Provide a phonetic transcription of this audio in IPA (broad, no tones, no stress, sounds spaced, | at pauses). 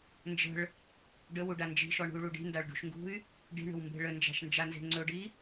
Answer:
n d͡ʒ ə̤ ɭ | ɖ ə w u ɖ a n d͡ʒ i̤ ʃ ɔ ɳ ṳ y̯ ɭ u ɖ i̤ n d a ɭ ɖ ṳ ʃ ŋ ɡ ṳ y̯ | ɖ i̤ ɳ ə̤ w m b e̤ ɭ ə n d͡ʒ a̤ ʃ n d͡ʒ a n z e̤ ŋ͡ǀ ɵ ɖ i